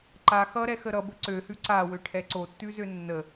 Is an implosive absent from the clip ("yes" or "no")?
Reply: yes